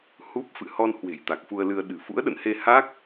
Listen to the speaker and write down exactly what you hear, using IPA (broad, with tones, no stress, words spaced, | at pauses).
hu˦˥p̚ fɨ̰˧˨hɔ˧nhwe̤˨˩jt̪a˨˩k̚ fu˧ə̯lɨ˧ə̯ ɗɨ̤˨˩fṵ˧˥ə̯ɗə̰˧˨nhe˧ ha˦˥k̚